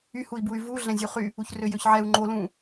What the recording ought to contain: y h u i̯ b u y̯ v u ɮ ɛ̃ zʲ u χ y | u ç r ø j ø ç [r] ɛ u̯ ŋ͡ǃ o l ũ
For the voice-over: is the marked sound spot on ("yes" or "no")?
no